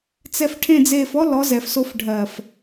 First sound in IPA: t͡s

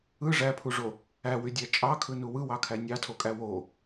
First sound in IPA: ɯ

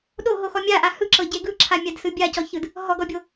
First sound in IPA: ɗ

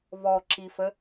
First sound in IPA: β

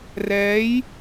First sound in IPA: r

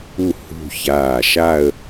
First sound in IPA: u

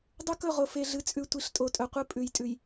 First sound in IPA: dˤ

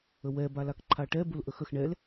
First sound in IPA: ə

